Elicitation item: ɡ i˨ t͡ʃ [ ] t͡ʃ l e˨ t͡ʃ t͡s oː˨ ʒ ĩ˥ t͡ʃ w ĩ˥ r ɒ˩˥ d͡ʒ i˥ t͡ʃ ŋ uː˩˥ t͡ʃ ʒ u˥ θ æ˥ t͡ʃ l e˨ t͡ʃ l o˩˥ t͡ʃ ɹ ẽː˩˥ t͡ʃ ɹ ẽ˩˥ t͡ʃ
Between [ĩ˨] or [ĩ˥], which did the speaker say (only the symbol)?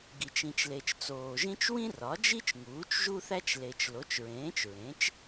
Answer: ĩ˨